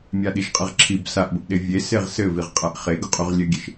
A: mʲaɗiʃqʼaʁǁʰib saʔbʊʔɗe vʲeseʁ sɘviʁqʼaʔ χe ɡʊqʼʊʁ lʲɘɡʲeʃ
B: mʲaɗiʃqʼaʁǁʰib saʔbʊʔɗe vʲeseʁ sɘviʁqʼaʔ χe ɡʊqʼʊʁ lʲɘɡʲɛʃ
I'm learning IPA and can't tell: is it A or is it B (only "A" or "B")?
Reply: A